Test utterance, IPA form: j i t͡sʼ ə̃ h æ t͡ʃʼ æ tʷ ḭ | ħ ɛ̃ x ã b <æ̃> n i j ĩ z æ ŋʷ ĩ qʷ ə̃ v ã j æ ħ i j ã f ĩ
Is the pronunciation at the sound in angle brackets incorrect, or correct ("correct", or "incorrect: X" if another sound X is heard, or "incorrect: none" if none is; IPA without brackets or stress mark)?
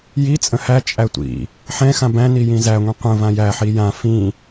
correct